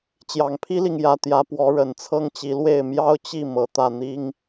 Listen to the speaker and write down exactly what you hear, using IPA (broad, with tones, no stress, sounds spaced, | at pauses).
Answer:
t͡ɕ j ɑ˨˩ ŋ pʰ i˦ l i˨ ŋ j ä˨˩ t̪ j ä˨˦ p w ɔ˨˦ ɻ ə˨˩ n t͡sʰ ɤ˦ ŋ t͡ɕ i˨˦ l w e˥˨ ɪ̯ m j ɑ˦ ʊ̯ t͡ɕ i˥˨ m ɤ˨˩ t̪ ä˥˨ n̪ i˦ ŋ